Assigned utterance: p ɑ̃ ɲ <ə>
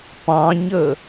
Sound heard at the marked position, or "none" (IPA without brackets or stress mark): ə